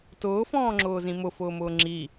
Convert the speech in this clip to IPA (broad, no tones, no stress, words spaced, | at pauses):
tʊːfɔ̃ːŋ͡ǁʊːzĩ mʊfʊːmʊː ŋ͡ǁi